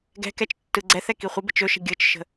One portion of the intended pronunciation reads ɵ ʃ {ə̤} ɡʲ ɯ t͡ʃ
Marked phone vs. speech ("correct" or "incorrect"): correct